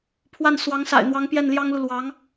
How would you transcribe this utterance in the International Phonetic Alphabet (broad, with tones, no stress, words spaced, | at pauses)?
pʰwa˥˩n swɑ˧˥ŋsa̰˨˩ɪ̯n̪wɑ˧˥ŋ pjɛ˥˩nljɑ˥ŋlu˨ lwɑ˧˥ŋ